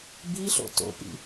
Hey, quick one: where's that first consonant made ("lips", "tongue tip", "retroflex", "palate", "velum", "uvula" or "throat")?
lips